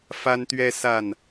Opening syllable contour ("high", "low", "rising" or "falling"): high